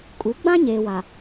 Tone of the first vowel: rising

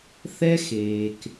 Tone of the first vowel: high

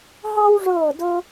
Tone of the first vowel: high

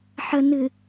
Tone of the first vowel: low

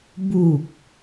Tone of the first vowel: low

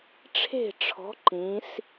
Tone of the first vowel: falling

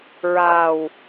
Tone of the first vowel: low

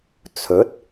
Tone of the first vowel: rising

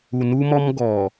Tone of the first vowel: low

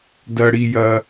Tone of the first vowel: low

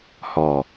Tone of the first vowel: low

